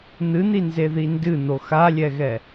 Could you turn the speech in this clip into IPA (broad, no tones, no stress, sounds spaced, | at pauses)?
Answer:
n̪ ɨ n̪ i n z e ð i n d ɨ n̪ o x a lʲ ɛ ɣ ɛ